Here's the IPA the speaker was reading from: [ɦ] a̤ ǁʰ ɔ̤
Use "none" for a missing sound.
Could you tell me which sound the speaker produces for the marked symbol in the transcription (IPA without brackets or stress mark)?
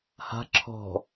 h